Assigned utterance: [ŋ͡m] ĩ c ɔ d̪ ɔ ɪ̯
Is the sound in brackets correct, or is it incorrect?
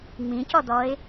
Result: correct